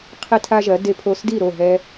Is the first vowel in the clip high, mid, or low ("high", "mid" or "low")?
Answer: high